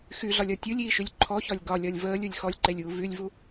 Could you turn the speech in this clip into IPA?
xyɮɒlʲɒ tʲulʲiːʃylʲ ǃʰɔçɒlʲ ɡɒlʲɒlʲ vəːlʲulʲ xɔlʲǃelʲuː vylʲvu

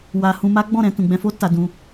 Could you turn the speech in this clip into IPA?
wa˧ hũ˧ma˦ɡ͡bɔ̃˦˨ɾɛ̃˧ tũ˨ɡ͡bɛ̃˧fo˦ ta˧dũ˧

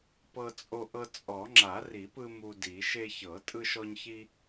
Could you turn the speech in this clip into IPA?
pɤ˧ t͡sʼo˧ʔɤ˧ t͡sʼɔ˨˩˦ ŋ͡ǁa˨˩˦ri˨˩˦pɯ˧ mu˧di˨˩˦ ʃe˧çɤ˨˩˦ tʼɯ˧ʃɔ˧ɲçi˧

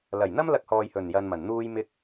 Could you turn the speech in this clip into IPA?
lɐ˨˩jn̪ɐ˥m lɐ˧k̚hɔː˨j hɵ˨˩njɐ˨n mɐ˨˩nn̪uː˥jmɪ˥k̚

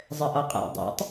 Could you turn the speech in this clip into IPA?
zˤɘʔɔqʼa̰ dˤa̰tˤ

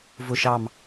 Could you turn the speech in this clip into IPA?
vʊ˧˩ʃɑ˧˩m

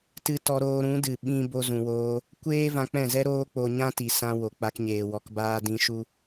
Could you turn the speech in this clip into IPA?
tɨ˦ tɔ˧ɾoː˧ɾũ˨˦dɨ˨ ɓĩ˦ bo˧zũ˨woː˧ | kʷeː˦ vã˧k͡pɛ̃˦˨zɛ˦ ɾoː˦k͡po˧ ɲã˦ti˨sã˧ wo˨k͡pa˧kɲeː˨ wɔ˨kbaː˧dĩ˧ ʃu˦

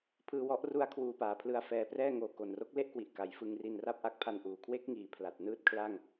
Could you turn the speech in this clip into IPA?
pʰɯː˧wɔ˦˥ʔru˦˥a̯ kʰwuː˧paː˨˩pʰlɯ˧a̯fɛː˧ prɛː˥˩ŋoː˨˩ ko˨˩nro˦˥k̚le˥˩ʔkwi˨˩ʔ ka˩˦jfɯ˧ŋri˧nra˥˩p̚ ʔa˦˥k̚pʰa˧nʔuː˨˩ kʰwe˦˥k̚ŋiː˩˦ pʰla˨˩t̚nɯː˥˩t̚kʰla˥˩ŋ

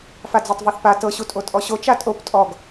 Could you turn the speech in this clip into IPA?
fad͡zɤtˤvɤθpa tɤ ɕutʼotʼɔɕo t͡ʃatʼop tʼɔɡ

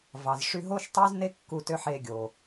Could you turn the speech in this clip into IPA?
vɑ˨zʂy˧ ɦo˦ʃtˤy˦z ne˦kːu˧ tø˦ħe˧ɡʲo˨

